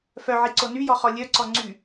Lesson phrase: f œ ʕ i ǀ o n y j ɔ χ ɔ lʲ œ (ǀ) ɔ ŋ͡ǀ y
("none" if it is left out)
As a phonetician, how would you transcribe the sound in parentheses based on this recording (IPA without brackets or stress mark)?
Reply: ǀ